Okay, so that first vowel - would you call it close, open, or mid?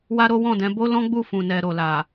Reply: open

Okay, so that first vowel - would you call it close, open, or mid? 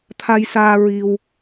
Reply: open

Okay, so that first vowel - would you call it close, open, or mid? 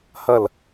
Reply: open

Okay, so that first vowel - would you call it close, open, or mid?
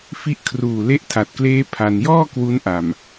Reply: close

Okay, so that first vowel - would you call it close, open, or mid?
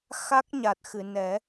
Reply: open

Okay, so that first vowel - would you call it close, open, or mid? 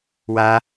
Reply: open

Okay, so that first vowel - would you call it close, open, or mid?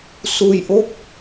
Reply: close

